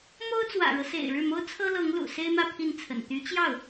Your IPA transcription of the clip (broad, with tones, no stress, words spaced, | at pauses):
mo˥ʊ̯t͡swä̰˨˩ɻɤ˦sḛ˨˩ɪ̯ ɻɻ̩˥˩mo˥ʊ̯t͡sʰɤ˥lɤ˧˥ŋ lṵ˨˩se˥ɪ̯mä˥˧ pʰi˥˩nt͡sʰə̰˨˩n t̪y˧˥t͡ɕjɑ˥˩ʊ̯